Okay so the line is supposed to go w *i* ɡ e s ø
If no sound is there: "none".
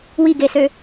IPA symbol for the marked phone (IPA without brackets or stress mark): i